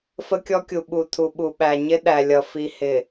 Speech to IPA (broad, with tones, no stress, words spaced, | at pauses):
fə˦kʲɔ˦kʲu˨ ɓu˨tʰu˨ɓu˨ɓæ˨ ɲɪ˦ ɗæ˨lʲʌ˨ fi˨hɪ˨